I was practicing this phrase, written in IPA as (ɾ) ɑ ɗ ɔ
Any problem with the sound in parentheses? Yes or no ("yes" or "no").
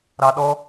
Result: no